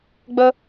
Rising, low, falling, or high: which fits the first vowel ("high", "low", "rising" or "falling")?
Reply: high